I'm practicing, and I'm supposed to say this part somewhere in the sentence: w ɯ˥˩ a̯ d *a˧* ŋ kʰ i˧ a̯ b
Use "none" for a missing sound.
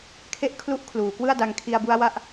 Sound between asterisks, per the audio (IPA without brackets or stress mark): a˧